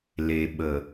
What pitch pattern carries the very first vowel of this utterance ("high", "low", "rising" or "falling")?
low